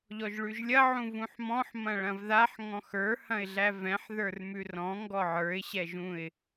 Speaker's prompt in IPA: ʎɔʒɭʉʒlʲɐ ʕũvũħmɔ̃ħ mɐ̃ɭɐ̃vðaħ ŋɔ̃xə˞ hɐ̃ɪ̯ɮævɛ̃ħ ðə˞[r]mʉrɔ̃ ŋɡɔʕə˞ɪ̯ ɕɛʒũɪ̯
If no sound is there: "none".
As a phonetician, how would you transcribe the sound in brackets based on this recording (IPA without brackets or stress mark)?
r